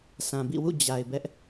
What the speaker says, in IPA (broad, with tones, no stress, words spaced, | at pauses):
sʰã˨bḭ˦˨wṵ˦˨ d͡ʑa˨ɪ̯ bɛ˦ʔ